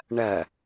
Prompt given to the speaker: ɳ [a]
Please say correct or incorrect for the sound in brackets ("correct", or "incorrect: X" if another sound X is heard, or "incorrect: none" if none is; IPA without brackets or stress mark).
incorrect: ɐ